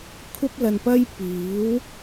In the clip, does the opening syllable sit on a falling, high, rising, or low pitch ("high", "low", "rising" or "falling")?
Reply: high